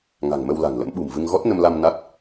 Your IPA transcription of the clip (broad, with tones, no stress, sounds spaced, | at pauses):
ŋ a̤˨˩ ŋ m ə˧ w l a̤˨˩ ŋ l ə̰˧˥ m ɓ ṳ˨˩ m v ɨ˧ ŋ ɣ ɔ˦˥ t̚ n ə˧ m l a˧ m n a˦˥ t̚